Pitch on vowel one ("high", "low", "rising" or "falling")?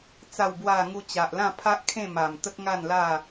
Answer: falling